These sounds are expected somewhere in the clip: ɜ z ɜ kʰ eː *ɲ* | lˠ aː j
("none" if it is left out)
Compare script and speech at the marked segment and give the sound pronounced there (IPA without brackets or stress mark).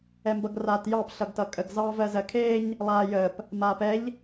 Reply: ɲ